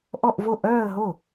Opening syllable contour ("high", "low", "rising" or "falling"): falling